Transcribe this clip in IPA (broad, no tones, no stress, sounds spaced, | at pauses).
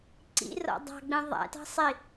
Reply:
ǀ ḭ r ɔ̰ dˤ ɑ̤ ɡ͡b ĩ ðˤ æ̰ t ɑ̤ sˤ i